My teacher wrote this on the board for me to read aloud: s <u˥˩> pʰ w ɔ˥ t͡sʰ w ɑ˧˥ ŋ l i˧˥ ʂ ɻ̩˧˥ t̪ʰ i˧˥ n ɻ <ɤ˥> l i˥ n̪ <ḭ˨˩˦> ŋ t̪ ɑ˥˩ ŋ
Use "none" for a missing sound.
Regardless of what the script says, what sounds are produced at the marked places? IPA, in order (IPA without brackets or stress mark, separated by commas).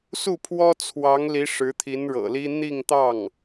u˥˩, ɤ̰˨˩, i˥˧